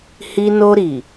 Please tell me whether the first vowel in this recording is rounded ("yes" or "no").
no